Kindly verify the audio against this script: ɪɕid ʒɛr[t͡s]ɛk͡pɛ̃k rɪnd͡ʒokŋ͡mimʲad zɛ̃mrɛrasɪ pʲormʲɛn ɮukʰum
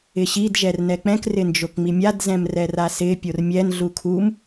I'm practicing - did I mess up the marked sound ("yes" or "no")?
yes